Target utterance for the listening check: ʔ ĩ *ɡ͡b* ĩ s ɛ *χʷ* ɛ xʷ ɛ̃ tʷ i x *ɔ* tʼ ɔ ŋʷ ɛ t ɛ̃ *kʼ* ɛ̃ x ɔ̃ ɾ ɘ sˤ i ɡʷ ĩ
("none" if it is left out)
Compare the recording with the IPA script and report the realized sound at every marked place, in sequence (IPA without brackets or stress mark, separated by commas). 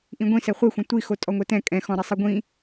ɡʷ, χʷ, o, kʼ